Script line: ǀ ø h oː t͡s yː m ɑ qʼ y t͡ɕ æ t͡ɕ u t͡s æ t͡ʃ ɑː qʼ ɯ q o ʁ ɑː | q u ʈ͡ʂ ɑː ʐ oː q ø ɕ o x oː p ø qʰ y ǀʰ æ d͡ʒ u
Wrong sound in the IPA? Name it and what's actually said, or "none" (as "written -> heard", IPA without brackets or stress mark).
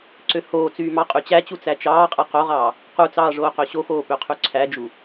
ʈ͡ʂ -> t͡s